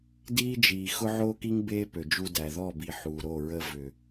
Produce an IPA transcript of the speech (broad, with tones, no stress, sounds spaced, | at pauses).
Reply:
d iː˦ d͡ʒ iː˨ x ʊ˦ ʕ oː˦ k i˦ ŋ b eː˦ p ø˨ d͡ʒ u˧ d æ˨ ð ɔ˦˨ b i˨ ħ uː˨ ɾ o˦˨ ɹ ə˧ v ʏ˨